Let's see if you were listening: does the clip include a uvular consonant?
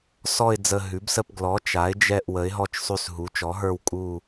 no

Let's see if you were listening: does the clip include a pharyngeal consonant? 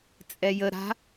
no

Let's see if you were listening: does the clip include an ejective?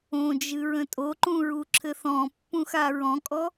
yes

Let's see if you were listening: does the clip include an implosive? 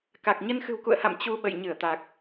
yes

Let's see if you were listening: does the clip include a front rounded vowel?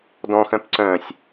yes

